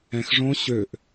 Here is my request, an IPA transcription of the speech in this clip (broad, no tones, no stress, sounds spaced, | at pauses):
ɛ̃ x ʐ õ ɕ ø ʔ